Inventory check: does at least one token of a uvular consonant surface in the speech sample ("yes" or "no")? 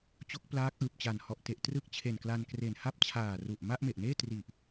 no